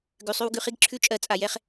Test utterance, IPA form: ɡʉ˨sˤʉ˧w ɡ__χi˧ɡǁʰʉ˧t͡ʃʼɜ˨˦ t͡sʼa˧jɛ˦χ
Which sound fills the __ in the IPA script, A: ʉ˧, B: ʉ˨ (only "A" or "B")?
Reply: B